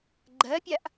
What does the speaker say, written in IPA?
ɡ͡ǃ ɜ pʲ a ʔ

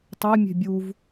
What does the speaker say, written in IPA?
tˤ e mʲ e̤ bʲ u v

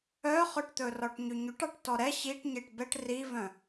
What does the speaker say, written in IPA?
œ χ ø ʈ t̪ ɵ r ɔ ʈ ɲ ʉ ɲ ʉ ʈ ɑ ʈ t ɔ ɾ ɛ ɕ i ʈ ɲ e ʈ b ɛ ʈ r i v œ̃

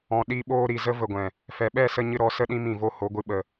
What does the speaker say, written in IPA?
ɔ̃˨ ɗ i˧ ɓ oː˧ ɾ i˨ z ə˦ v ə˨ ɡʷ ɛ̃˨ | f ɛ˨ ɓ ɛ˦˨ s ə˧ ɲ ɨ˧ ɾ ɔ˨˦ s ə˦ ɗ ĩ˦ m ĩ˦˨ v o˦ h o˨˦ ɡʷ ɨ˧ ɓ ə˧

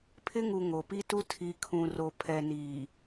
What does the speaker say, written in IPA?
pʰ ɪ˦ ŋ u˨ ŋ o˨ p i˦ t u˦ tʰ i˨ kʰ ũ˨ r o˨ pʰ ɛ˨ n iː˨

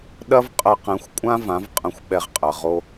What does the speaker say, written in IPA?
ɗ ɐ˦ v qʼ ɐ˧ q ɛ̃˨˦ xʷ kʷʼ ã˦ v ã˨˦ v qʼ ɐ̃˧ xʷ ɓ ɛ˧ ʁ qʼ ɐ˨ ʁ o˧

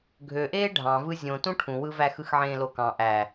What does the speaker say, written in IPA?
ɡʱ ø ʔ eː ɖʱ ɑ̃ v ɯ zʲ õ t ũ ʈʰ ũ w ɯ v æ x ɯ x ʕ ẽː l o k ɑ̃ ʔ æ

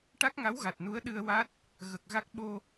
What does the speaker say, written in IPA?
ʈ a˦˥ k̚ ŋ a˧˥ w ɣ a˨˩ t̚ n u˧˥ ə̯ ɗ ɨ˧ ə̯ w a˦˥ t̚ | ɣ ə˨˩ k̚ ɣ a˦˥ k̚ ɓ o˧

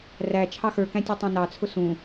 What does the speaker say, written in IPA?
r æ t͡ʃʰ ɑ x ə˞ k æ̃ tʲ u tˤ ɛ̃ n ɑ t͡sʰ ʊ s ũ

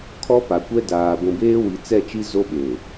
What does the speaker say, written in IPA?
kʰ ɔ˦ p a˨ kʷ ɛ˦ d aː˨ ɡʷ ũ˨ b eː˦ w i˨ t͡s ɛ˦˨ t͡ʃ i˦ z o˦ ɓ e˨

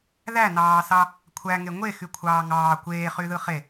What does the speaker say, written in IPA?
ð æ n ɑː s ɑ | kʷʰ æ ŋ e ŋʷ e x y kʷʰ ɑː ŋ ɑː kʷ eː χ y ð ɯ χ e

